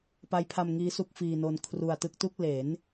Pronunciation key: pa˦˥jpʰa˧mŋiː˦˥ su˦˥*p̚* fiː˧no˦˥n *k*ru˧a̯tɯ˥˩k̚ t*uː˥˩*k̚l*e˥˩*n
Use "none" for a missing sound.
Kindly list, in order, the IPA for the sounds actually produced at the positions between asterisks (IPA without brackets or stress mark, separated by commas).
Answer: k̚, kʰ, u˥˩, e˩˦